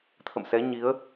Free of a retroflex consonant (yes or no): yes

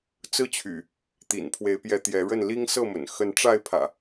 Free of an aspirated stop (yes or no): no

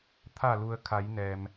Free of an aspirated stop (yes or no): no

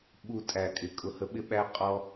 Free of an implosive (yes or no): no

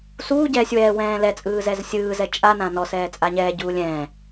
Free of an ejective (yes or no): no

